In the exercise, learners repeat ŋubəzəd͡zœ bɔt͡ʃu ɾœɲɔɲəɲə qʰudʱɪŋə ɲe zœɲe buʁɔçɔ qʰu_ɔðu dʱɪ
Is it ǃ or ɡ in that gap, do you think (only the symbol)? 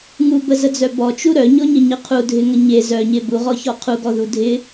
ɡ